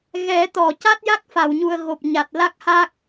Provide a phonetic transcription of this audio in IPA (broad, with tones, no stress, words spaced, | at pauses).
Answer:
ɣɛ˨˩˦t̪ɔ˨˩˨ca˦˥t̚ ja˦˥k̚fa˨˩˨wɲu˨˩ə̯ ɣo˨˩p̚ɲa˨˩t̚ la˦˥k̚ha˦˥k̚